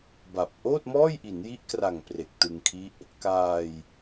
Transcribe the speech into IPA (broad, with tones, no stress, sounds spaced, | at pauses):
b a˨˩ p̚ ʔ oː˥˩ t̚ m ɔː˥˩ j ʔ i˩˦ n j i˦˥ ʔ k r a˨˩ ŋ p r e˨˩ k̚ t ɯ˧ ŋ kʰ i˦˥ ʔ | k aː˧ j